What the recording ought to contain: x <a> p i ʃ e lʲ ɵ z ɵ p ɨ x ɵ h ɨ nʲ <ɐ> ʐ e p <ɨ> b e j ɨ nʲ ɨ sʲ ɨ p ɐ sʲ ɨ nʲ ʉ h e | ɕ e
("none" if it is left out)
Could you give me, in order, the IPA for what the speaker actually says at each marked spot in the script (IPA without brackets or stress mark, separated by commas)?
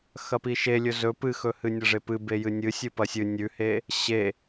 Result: ɐ, ɐ, ɨ